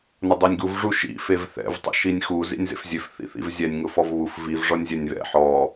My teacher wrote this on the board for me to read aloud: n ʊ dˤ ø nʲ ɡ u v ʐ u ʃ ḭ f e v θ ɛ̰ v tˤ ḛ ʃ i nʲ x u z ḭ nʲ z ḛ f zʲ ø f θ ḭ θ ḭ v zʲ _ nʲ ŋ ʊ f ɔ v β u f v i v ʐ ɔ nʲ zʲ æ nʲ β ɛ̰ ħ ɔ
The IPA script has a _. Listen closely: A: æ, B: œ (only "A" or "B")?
A